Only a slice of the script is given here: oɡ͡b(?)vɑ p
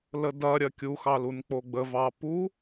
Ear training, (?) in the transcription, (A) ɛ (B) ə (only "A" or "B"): B